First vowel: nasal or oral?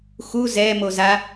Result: oral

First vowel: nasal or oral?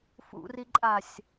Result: oral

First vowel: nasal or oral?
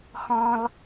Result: nasal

